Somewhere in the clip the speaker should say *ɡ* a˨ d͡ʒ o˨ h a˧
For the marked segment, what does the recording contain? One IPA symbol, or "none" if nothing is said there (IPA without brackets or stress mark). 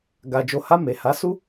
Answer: ɡ